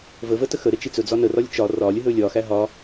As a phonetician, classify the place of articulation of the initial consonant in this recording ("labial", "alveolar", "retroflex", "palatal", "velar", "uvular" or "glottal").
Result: labial